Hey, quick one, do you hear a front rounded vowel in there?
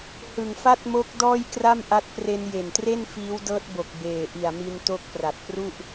no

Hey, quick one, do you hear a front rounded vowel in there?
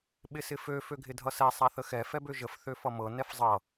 yes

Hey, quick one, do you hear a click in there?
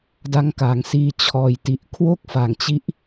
no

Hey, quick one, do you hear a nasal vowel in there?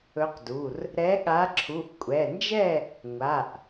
no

